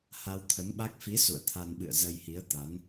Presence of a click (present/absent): absent